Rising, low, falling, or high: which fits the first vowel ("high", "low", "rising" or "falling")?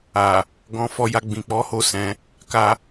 low